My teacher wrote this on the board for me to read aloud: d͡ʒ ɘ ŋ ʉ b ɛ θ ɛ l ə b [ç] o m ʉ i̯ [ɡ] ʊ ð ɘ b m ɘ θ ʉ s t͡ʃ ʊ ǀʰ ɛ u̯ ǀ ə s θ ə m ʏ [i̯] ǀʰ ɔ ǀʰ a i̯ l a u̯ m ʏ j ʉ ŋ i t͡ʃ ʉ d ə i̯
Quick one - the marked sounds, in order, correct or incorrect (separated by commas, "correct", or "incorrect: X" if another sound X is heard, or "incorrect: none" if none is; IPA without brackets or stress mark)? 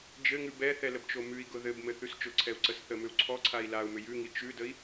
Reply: incorrect: t͡ʃ, correct, incorrect: u̯